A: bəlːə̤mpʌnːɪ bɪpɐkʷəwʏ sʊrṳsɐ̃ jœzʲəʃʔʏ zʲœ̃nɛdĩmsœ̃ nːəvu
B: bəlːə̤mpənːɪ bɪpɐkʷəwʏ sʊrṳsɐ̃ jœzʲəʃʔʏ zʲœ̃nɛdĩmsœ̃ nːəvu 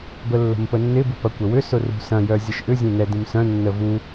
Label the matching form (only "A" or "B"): B